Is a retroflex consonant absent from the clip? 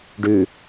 no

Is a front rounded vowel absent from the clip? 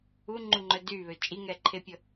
no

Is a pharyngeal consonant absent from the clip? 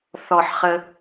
no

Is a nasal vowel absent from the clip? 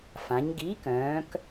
no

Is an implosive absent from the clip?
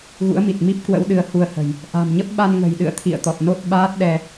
no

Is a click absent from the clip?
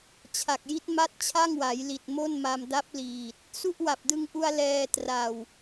yes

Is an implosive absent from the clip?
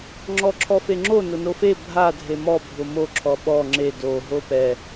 no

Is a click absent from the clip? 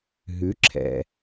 no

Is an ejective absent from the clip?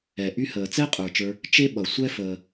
no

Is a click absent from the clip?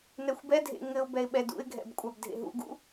yes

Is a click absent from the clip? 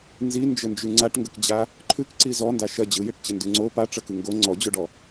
no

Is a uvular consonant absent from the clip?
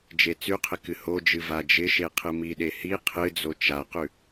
no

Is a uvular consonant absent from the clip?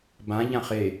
no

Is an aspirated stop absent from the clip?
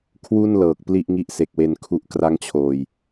no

